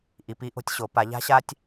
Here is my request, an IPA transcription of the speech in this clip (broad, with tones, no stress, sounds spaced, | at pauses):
ʔ i˩˧ p i˥ ʔ o̤˧ tʲ ɕ o˩˧ p a˩˧ ʎ a̤˥ ɕ a˥ tʲ